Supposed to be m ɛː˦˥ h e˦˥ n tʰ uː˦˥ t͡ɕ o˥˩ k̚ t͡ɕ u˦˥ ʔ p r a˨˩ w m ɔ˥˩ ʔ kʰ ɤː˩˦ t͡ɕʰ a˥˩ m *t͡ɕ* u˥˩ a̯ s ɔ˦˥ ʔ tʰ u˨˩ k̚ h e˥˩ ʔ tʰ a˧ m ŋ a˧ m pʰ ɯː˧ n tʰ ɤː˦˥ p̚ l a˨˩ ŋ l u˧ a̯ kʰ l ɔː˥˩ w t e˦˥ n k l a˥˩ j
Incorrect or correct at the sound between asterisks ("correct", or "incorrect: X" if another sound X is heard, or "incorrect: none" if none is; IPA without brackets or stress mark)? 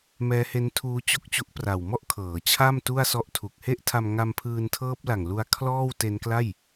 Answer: incorrect: t